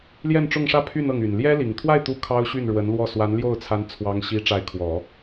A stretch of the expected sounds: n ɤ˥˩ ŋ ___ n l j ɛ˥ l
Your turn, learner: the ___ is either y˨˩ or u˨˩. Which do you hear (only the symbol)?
y˨˩